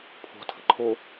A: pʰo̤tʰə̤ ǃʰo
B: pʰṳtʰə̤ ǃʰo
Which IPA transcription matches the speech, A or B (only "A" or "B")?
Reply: A